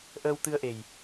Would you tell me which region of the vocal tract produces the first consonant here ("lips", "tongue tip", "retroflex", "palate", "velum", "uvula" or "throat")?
throat